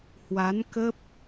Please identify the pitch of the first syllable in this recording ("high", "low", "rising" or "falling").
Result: rising